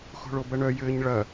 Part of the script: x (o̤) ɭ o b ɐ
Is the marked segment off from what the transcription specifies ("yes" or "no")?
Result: no